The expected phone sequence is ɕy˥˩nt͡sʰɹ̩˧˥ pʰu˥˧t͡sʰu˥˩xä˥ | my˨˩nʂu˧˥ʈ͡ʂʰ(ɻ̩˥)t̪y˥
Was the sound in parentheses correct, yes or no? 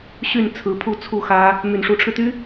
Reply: no